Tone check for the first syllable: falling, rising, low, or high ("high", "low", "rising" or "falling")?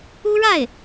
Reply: high